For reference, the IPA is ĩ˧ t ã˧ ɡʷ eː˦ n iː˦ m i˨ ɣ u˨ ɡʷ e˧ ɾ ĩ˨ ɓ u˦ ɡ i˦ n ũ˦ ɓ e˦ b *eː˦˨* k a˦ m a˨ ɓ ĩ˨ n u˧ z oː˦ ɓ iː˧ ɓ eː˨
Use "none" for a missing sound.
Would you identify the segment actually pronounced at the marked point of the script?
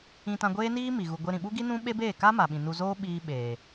eː˦˨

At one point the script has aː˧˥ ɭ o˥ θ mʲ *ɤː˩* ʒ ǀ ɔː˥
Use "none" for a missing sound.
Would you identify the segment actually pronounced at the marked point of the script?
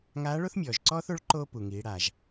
ɔː˩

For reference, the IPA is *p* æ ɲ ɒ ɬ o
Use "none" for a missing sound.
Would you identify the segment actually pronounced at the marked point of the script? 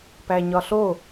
p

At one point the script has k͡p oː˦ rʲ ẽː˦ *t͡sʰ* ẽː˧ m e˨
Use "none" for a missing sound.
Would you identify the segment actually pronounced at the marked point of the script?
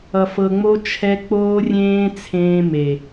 t͡sʰ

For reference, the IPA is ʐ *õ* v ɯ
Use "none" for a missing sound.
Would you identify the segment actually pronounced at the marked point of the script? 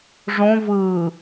õ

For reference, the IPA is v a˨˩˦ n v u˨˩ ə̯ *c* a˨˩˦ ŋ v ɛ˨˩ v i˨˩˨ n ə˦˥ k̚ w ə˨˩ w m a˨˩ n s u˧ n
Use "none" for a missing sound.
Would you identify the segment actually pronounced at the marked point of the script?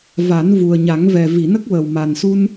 ɲ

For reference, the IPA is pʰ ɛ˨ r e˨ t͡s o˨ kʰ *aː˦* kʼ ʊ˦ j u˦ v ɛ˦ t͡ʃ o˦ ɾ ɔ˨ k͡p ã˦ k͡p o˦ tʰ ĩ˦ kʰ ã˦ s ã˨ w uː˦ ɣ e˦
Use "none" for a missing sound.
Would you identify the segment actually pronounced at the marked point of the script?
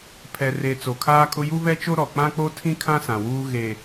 aː˦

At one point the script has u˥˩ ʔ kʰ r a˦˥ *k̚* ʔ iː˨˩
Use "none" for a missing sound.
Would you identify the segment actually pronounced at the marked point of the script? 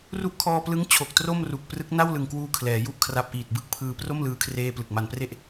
p̚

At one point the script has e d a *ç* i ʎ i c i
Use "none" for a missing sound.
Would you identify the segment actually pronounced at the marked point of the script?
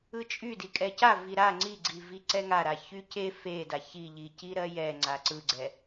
ç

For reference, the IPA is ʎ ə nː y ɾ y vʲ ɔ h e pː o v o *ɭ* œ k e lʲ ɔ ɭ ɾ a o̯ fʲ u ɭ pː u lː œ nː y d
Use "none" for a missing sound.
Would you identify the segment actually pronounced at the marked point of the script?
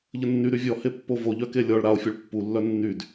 ʎ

